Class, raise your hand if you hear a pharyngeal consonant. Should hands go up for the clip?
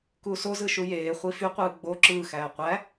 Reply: no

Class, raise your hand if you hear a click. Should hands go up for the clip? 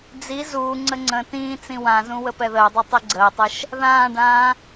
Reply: yes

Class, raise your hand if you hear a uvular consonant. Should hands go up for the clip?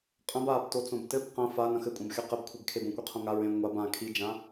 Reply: yes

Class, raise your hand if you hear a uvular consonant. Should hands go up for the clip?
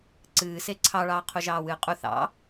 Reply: yes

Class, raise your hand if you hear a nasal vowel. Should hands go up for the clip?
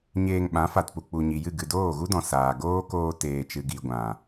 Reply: yes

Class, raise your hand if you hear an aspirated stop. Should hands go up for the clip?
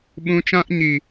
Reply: no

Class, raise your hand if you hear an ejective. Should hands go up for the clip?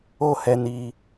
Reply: no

